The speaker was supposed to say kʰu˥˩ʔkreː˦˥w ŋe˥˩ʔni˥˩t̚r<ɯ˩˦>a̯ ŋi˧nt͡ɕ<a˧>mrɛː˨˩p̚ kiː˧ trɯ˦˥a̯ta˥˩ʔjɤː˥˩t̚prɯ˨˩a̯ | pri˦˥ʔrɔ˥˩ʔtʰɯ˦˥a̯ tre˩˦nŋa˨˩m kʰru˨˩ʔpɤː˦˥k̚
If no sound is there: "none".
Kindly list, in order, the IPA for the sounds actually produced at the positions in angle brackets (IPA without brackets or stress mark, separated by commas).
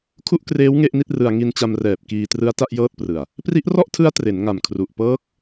ɯ˧, a˧